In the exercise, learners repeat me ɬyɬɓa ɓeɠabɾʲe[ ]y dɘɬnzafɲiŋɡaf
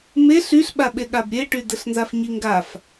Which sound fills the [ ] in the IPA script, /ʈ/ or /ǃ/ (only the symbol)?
ʈ